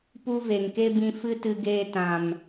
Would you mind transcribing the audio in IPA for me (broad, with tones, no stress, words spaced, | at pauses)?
pu˦veː˨ŋke˦ bĩ˧ fɨ˦ tɨ˧ɡeː˧tã˨m